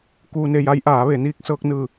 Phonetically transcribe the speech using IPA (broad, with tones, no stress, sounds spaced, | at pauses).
k uː˧ n e˧ j a˧˥ j ʔ aː˩˧ ʋ e˩˧ n iː˧ k̚ s ɤː˧ k̚ n ɯː˧˩